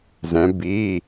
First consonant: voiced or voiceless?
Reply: voiced